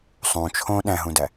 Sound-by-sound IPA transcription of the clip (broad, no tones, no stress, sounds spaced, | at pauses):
sˤ ũ t͡ʃʰ õ ɗ æ̃ ɦ ũ d æ